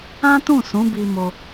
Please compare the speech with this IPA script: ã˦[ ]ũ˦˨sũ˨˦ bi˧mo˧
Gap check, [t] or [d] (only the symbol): t